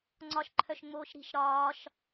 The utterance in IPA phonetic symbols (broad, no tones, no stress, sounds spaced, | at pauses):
ŋ͡ǀ ɒ ʃ ǃʰ œ ʃ ŋ͡m oː ʃ ɾ i̤ ʃ ɾ ɒː ʃ